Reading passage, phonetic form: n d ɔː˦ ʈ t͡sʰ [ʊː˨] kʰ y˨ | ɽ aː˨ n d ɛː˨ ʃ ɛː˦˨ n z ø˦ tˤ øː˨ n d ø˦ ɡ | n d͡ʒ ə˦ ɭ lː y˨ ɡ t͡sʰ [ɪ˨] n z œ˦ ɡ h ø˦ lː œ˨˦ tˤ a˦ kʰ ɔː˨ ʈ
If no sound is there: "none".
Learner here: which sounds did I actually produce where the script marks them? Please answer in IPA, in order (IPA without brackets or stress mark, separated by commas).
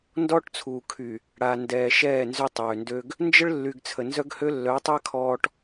uː˨, ə˨